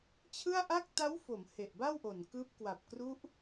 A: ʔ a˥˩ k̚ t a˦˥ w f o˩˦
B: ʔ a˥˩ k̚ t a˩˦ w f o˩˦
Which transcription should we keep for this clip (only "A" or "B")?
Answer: A